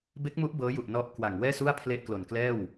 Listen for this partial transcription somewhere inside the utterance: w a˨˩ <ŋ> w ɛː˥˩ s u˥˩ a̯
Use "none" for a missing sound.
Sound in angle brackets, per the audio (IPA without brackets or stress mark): ŋ